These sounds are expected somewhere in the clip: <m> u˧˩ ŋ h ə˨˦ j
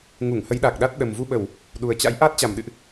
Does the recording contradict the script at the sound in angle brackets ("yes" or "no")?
yes